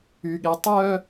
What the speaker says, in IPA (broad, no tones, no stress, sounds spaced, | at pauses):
y ɠ e tˤ œ